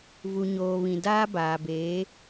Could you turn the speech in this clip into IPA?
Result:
v u˨ ɲ oː˨ β ĩ˨ d aː˦ b aː˨ b eː˨˦

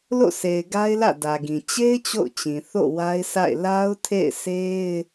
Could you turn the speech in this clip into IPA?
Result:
l o̰˦˨ s e˨ ɪ̯ ɡ a˦ ɪ̯ l ä̰˦˨ d ä˨ ɡ ĩ˨ t͡ɕ e˦ ɪ̯ t͡ɕ o̰˦˨ ʊ̯ t͡ɕ ĩ˨ θ o̰˦˨ w a˦ ɪ̯ sʰ a̰˦˨ ɪ̯ l a˦ ʊ̯ tʰ ḛ˦˨ ɪ̯ s e˦ ɪ̯

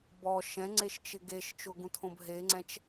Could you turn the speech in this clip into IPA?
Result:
b ɔ ʃ ɛ̃ ŋ͡ǀ e ʃ t͡ʃ ɪ ɡ e ʃ t͡ʃ ʊ ɡ ũ tʰ õ b ɦ e ŋ͡ǀ ɛ̃ t͡ʃ

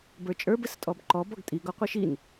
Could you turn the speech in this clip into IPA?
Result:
b ə˞ t͡ʃʼ ə˞ b ɘ s tʼ ɔ b ǃ ɔ b ɔ ɡ tʼ i ɡ ɔ qʷ i ʃ i n

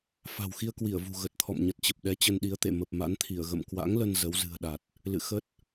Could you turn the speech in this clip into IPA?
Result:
f a̤˨˩ w x i˧ ə̯ k w i˧˩ ə̯ v ṳ˨˩ ɣ ə˨˩ t̚ t̪ʰ ɔ̰˧˨ m ɲ ə˨˩ t̚ t͡ɕ ə˨˩ p̚ ɗ ɛ˨˦ t͡ɕ ə˧ n ɗ i˨˦ ə̯ t̪ ḛ˧˨ m ə˨˩ p̚ m a̰˧˥ n t̪ʰ i˧˩ ə̯ ɣ ə̰˧˨ m k w a̰˧˥ ŋ l ə˧ n z ə˨˦ w z ɨ̤˨˩ ə̯ ɗ a˨˩ t̚ | l ɨ̰˧˨ x ə˦˥ t̚

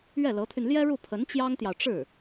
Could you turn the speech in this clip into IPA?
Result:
ɥ ɛ˥˩ l ɤ˧˥ t̪ʰ y˧ n l j ɛ˥ ɻ u˥˩ pʰ ə˧˥ n t͡ɕ j ɑ˥ ŋ t̪ j ɑ˨ ʊ̯ ʈ͡ʂ ɻ̩˥˩

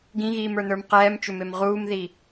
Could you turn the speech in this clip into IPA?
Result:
ɡ ĩ ɣ iː m ə˞ n ə˞ m q ɛː m t͡ʃ ʏ m e m ʁ uː m ð i

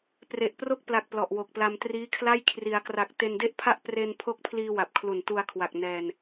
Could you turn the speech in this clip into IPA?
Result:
p r e˨˩ ʔ p r o˥˩ k̚ p l a˨˩ k̚ p l ɔ˨˩ ʔ w o˨˩ k̚ p l a˧ m t r iː˦˥ kʰ l a˥˩ j kʰ r i˩˦ a̯ k r a˨˩ k̚ t e˧ n d e˥˩ ʔ pʰ a˥˩ ʔ p r e˧ n pʰ o˦˥ k̚ pʰ l iː˧ w a˨˩ p̚ kʰ l u˨˩ n t u˧ a̯ kʰ w a˨˩ k̚ n ɛː˧ n

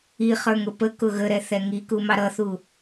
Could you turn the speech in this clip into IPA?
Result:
i χ ə˞ ŋ ʊ p ə k ʊ ɣ ə ɾ ɛ θ ɛ ŋ i k u m ɑ ɾ ʌ θ u

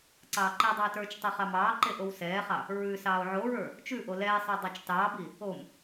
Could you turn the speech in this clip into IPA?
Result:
ǀ ɑː ǃ i dˤ ɑː t ə˞ t͡ʃ tˤ ʉ χ ɑ m ɑː ǃ e ʔ o w s ɛː χ ɑ | ɹ ʉ s ɑː o̯ ʕ o ɹ ə˞ | t͡ʃ ʉ ʔ o l ɛː sˤ ə˞ dˤ ɑ t͡ʃ t ɑː b i | o m

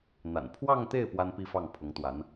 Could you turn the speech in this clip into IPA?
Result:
n̪ a̰˨˩ n pʰ w ɑ˥˧ ŋ t̪ e˥˩ ɪ̯ p w a˥ n p i˥˧ f ɑ˥˩ ŋ pʰ ʊ˧˥ ŋ t̪ w a˧˥ n

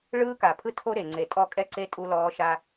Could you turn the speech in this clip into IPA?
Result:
ɭ ɯː˦ k a˨ pʰ ɯ˦ tʰ o˦ ɾ e˨ ŋ͡ǀ e˨ tʼ ɔ˦ kʼ ɛ˦ ǀ e˦ tʼ u˦ l ɔː˦ ʃ a˦

